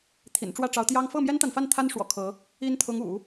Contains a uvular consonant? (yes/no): no